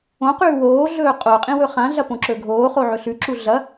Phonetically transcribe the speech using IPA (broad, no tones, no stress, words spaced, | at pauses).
õqʉː woːɮɵː qʼoqʼĩ wɵχãɮɐ põǁɵɡʱoːχo ʕɵɬʉǁu ɮɐ